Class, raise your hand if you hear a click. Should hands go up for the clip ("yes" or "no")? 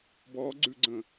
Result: yes